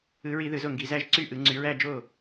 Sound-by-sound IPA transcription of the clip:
ɯ˨˦ɹi˧˩˧ ðɯ˧˩˧zo˥˩ŋɡi˧˩˧ zæ˥˧ʒ ǀy˥˩ ʔɯ˨˦ ŋ͡ǀy˨˦ɹæ˥˧ d͡ʒo˥˩

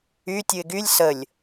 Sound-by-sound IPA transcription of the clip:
y tʲɯɪ̯ɡylʲ səlʲ

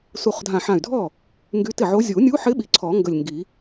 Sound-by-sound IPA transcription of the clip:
su˧˩χdʱã˧˩ħã˧˩y̯dʱɔ˥˩ | ŋɡy˧˥tɪ˥˩ʕo˧˥ zʲu˨˩˦nʲu˧˥ħɪ˧˥ ɓi˧˩ǀʰɔ˨˩˦ ŋɡə˧˩lʲŋɡi˨˩˦

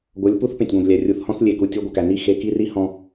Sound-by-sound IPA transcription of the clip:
ɡʷɤ˨˦lʲpu˦θpẽ˨tʲɡʷẽ˨ɡ lʲæ˨rʲu˨θ hɔ̃˦θlʲe˨ku˨ tʲɤ˦ɡʷɤ˨kæ˨ ni˦ xe˨ki˦ri˦ hɔ̃˦

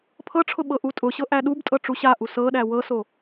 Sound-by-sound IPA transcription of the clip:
pʰɤʈ͡ʂʰʊ ɓɤʔutʼʊɕɤ ʔæɗubtʼɤ ʈ͡ʂuɕaʔu sɤɗæ wɤso

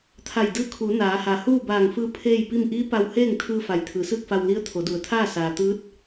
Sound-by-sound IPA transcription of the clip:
t̪ʰa˧˩jdɯː˧˥kʰuː˩˧ naː˩˧ha˩huː˥˨ baː˧˩ŋfɯː˧ pʰeː˥˨jpi˥˨m ʔiː˧˥ pa˧wheː˥˨ŋ t̪ʰɯː˧ fa˩jt̪ʰɯː˩˧sɯː˥˨k̚fa˧w li˧˥ə̯t̪ʰo˩˧du˩ə̯t̪ʰaː˥˨ saː˩t̪ɯː˧˥t̚

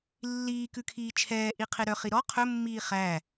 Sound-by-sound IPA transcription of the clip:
lːiː kʉkʰiːt͡ʃʰɛː ʔiqʰeɾœ χiɾɔ qʰɵ mːiːχæ

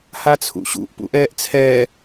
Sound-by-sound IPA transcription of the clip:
hat͡sʰṵɕṵʔ pṵʔɛːʔt͡sʰɛː

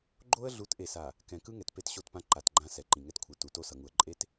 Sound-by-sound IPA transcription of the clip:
ɡ͡ǃo˦ə̯ɮu˨˦t ʔe˨sa˨ | kɛ̃˨kɯ˦ ŋɛ˨tpe˦˨tɕo˦˨tpã˦ ǃa˨tɡ͡ǃã˦ sɛ˨ǃĩ˨ŋɛ˦tkʷʰɯ˨ tu˨to˦ sʌ˨ŋu˨ə̯ǃʼe˦t

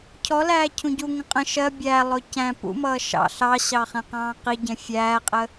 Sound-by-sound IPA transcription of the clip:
cʰɔlæː cʰũɟuŋə̃ qʼə̃ ʃɜ bʲælˠʊ cæ̃ pṵmʌː ʃɑ̰ ɬɑɕɑ χɛ̃qɑ̃ːqiɟɛ̃ fʲæːqʼə

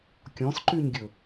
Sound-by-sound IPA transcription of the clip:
kʲɔ̃sǃyɲɡʲɵ

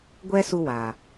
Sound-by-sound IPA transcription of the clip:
ɡʷɛ˦su˧wa˨

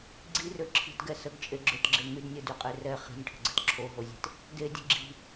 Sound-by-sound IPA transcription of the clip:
ɡ͡ǀirø ǁʰi̤tɡɛ səɡt͡ʃʼeɡ͡ǁøtɡ͡ǁe ŋydnʲɛdyqʼe rɛ χi̤nʲʈʰə̤ɡ͡ǀə̤t ǁʰoɦozʲe̤t | dedʲə̤ ɡ͡ǁi̤

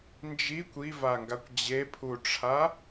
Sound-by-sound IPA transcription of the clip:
nd͡ʒikʷ ivaŋɡakʷ d͡ʑepʰuʈ͡ʂʰa

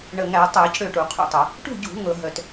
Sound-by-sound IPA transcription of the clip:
ɳə˨˩ŋæ˧˩˧tˤæ˧˩˧c ɽø˥˩ʈu˧˩˧qʰṵ˥˩tˤə˧˩˧ | ʈṳ˥˩ɟṳ˧˩˧ ŋɤ˧˩˧ɦœ˧˩˧t

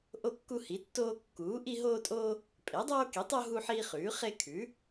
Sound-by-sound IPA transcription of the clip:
ʔo˦kːu˦hi˩˥tːoː˦ kːuː˩˥ ʔi˦ɦoː˦tʼoː˦ | pʼe˩˥dˤoː˦ki˩˥tˤo˦ ɦu˦ħiː˦χʉː˩˥ χe˦kʰʉ˩˥

